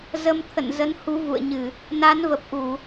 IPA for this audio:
zə˧mt̪ʰə̰˧˨nzə˨˦n hu˨˦vṵ˧˨ə̯ɲɨ˧˩˨ | na˨˦nvə˨˩p̚ ʔu˧˩˨

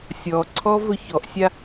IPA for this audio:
sʲɔǀʰɔ vɵçɔʔsʲa

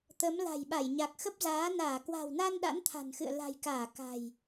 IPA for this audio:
t̪ə˨˦m la̤˨˩jɓa˧˩j ɲa˨˩k̚xə˦˥p̚zaː˨˦ naː˧˩kwa̤˨˩wna˧n ɗa̰˧˥nt̪ʰa̤˨˩nxɨ̰˧˨ə̯ la̤˨˩jkaː˧˩ ka̤˨˩j

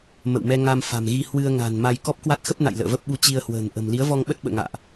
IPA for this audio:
mə̰˧˨wmɛ˧ ŋa˧mfa̤˨˩mɣi˧ hwɨ˧ə̯ŋa̤˨˩n ma˧j kɔ˦˥p̚kwa˦˥t̚xə˦˥p̚na̰˧˨j lə̰ː˧˨və˦˥p̚ɓu˧ t͡ɕi˧ə̯hwə̤ː˨˩n ʔə̤˨˩m li˨˦ə̯vɔ˧ŋɓə˦˥t̚ ɓə̰ː˧˨ ŋa̰ː˧˨ʔ

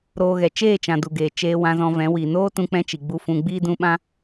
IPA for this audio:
ɾoː˧ɣɛ˨ t͡ʃeː˦˨t͡ʃã˨ du˨ɡeː˨ t͡ʃeː˧ wã˧zɔ̃˧vɛ̃˨˦ wi˨ noː˦tũ˧k͡pɛ̃˧t͡ʃi˨ ɡ͡bu˦fũ˧ ɡ͡biː˦dũ˧ɓã˦

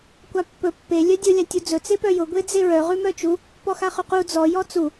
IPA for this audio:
kʷapːɵ pːe lʲœdʲɵ lʲatʲud͡zɵ t͡sepœjʊ ɡʷed͡zeɹœ ʁʉmœt͡ʃu | pɔxaχʉqu d͡zɔ jɔt͡su

